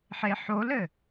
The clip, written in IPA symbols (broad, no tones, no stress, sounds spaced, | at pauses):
ħ e ħ o l ɘ